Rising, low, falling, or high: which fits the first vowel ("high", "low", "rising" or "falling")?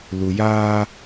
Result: low